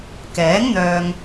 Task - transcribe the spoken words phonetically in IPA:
k ɛː˨˥ ŋ n̪ œː˨ ŋ

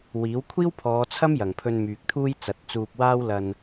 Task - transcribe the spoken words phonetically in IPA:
w iː˨˥ w kʷʰ iː˥ w pʰ ɔː˨˧ t͡sʰ ɐ˥ m j ɐ˨˩ ŋ pʰ ɵ˧ n m yː˨ k̚ t̪ʰ uː˥ j t͡s ɐ˨˥ t̚ t͡s uː˧ p̚ w aː˥ w l ɐ˧ n

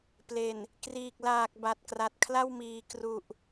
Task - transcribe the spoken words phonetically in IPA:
p l e˨˩ n | k r iː˨˩ k̚ l aː˨˩ k̚ b a˨˩ t̚ k r a˨˩ t̚ kʰ l a˥˩ w m iː˨˩ k r u˨˩ ʔ

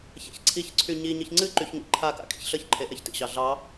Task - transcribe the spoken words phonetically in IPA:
ç a̰ ç ǀʰ i ç ǀʰ y ɲ i ɲ ɨ ç ŋ͡ǀ ɨ ǃ y ç ŋ ḭ ǃʰ a k a̰ kʼ ḭ ç ɬ ə ç ǃʰ e ʔ ɛ ç t ḭ ɕ ɑ ɮ ɑ

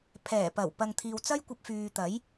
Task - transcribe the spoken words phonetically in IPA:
pʰ ɛː˨˩ p ɐ˨˩ w p ɐ˨ ŋ t̪ʰ iː˨ w t͡s ɐ˥ j kʷ ɐ˧ p̚ f yː˨ t̪ ɐ˨˥ j

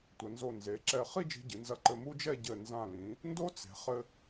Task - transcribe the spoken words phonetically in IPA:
tʷ ɐ˩˧ n z o˧˩ n z e˩˧ ǁ ɛ˧˩ χ i˥˧ d͡ʒ i̤˧ ɟ ɨ˩˧ n z ɐ˧˩ ǃ ɘ˧ m u˥ d͡ʒ ɛ˥˧ ɟ ɘ˧˩ n z ã˧˩ l ĩ˩˧ | n d o˥ t͡s e̤˩˧ χ ɘ˧

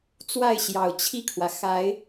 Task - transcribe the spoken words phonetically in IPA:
t͡s w a˥˨ ɪ̯ ɕ j ɑ˨˩ ʊ̯ t͡ɕʰ i˥˨ kʰ w ä˩ x a˨˦ ɪ̯

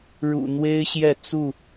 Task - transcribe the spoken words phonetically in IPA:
ɻ ṵ˨˩ n̪ w e˦ ɪ̯ ɕ j ɛ˥˨ t͡s u˥˨

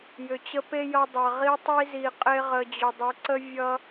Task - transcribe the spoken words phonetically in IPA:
j ʏ˨ t͡ɕ ə˧ p e˦ j ʌ˧ dˤ a˨ ʁ i˧ tˤ i˧ z i˨ qʼ e˧ ʁ ə˨ d͡ʑ ʏ˨ dˤ ə˨˦ ǀ ə˦ vʲ ʌ˦

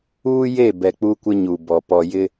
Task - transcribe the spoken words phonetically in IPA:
uː˦ j e˦˨ b ɛ˨ k͡p u˦ kʷ ɪ˦ ɲ u˨ b ɔ˨ p ɔ˨ j ɪ˦

